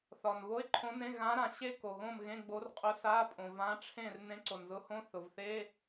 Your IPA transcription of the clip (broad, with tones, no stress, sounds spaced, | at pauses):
θ ɒ˩ n β o˧˥˧ ɪ̯ ǃʰ õ˧˥ n ẽ˧˥˧ ɣ ã˧˥ ɾ ã˩ ɕ e˥˨ k o˩ ɣ õ˥˨ m ɣ ẽ˧˥˧ ɡ͡b o˧˥ r qʼ ʊ˧˥ s a˧˥˧ pʼ õ˩ v ã˧˥ ʈ͡ʂʰ ẽ˥˨ r n ẽ˧˥ ǀ o˩ n z ʊ˧˥ h õ˧˥˧ θ ʊ˩ v θ e˧˥˧